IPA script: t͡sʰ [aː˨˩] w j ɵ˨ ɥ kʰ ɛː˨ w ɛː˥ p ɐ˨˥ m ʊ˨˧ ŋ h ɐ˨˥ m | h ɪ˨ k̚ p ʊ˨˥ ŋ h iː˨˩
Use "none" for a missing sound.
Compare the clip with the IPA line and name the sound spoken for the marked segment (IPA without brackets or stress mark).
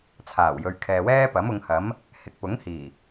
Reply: aː˨˩